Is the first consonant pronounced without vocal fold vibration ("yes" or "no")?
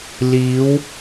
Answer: no